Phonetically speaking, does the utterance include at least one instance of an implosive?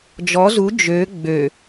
no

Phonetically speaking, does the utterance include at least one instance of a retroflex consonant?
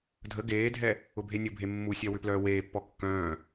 no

